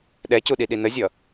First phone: ɗ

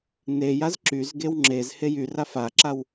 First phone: n̪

